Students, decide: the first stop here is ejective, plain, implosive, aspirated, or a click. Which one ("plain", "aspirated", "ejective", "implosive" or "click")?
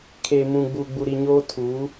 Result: aspirated